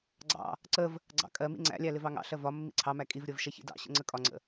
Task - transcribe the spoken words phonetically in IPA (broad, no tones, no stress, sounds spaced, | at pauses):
ɡ͡ǀ ɑ̰ | ǀ ə v | ɡ͡ǀ ɑ̰ kʼ ɜ m ḭ ŋ͡ǀ æ̰ lʲ æ l ɪ v ɑ ŋ ɑ̰ ɬ ɜ v ɒ mː ḭ ǀʰ ɑ m æ kʼ i v ɾʲ ɜ v ʃ ɛ ç ḭ d ɑ̰ ɕ ə̰ ŋ͡ǀ ə kʼ ɒ ŋ͡ǀ ə̰